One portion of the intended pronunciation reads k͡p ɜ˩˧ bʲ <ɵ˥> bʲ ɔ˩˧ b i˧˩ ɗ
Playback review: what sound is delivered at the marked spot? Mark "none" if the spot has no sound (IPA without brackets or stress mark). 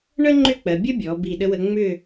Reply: ə˥